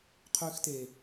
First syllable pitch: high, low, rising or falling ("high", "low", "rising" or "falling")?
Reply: high